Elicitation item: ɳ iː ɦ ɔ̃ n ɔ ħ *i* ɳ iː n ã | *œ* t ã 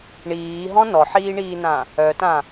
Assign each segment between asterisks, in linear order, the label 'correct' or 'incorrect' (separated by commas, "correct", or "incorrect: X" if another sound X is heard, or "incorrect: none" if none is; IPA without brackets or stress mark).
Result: incorrect: iː, correct